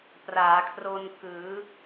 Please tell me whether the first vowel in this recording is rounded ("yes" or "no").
no